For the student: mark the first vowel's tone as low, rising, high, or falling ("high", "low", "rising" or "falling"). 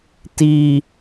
low